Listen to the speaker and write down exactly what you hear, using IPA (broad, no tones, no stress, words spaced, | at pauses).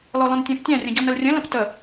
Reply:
lɔlɔ̃ntʲɔ̃ptʲã rʲə̃ɟɔnəlrʲə̃ lə̃ptə